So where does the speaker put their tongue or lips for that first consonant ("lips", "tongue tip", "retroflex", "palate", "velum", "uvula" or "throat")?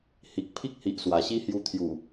throat